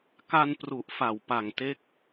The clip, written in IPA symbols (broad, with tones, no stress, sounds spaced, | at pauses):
k a˧ n p r u˨˩ ʔ f a˨˩ w p a˨˩ ŋ t e˦˥ k̚